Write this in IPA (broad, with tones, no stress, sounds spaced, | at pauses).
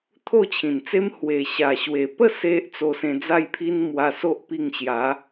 t̪ʰ o˥˧ t͡ɕʰ ĩ˨˩ n t͡s e˦ m h w e˨˩ ɕ a˨˩ ɕ w e˨˩ p ə˥˧ s e˦ ʔ t͡s o˧ s ẽ˧ d͡z a˥˧ j pʰ i˦ n m w a˧ s o˦ ʔ p i˧ ŋ ɕ j a˨˦